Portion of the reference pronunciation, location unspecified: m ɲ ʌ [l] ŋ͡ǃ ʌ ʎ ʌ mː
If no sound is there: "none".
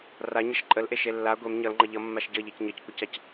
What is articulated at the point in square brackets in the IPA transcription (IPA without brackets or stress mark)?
l